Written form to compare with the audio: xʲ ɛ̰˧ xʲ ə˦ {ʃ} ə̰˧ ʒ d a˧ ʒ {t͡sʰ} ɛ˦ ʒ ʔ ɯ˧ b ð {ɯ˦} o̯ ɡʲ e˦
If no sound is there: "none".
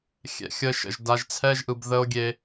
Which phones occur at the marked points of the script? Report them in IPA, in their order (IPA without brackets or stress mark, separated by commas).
ʃ, t͡sʰ, ə˦